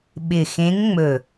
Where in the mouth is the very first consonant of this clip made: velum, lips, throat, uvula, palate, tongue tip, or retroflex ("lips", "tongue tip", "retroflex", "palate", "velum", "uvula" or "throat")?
lips